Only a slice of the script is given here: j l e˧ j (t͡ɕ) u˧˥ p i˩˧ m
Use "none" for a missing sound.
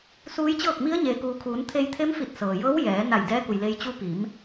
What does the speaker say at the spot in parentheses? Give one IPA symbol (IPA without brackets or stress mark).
t͡ɕ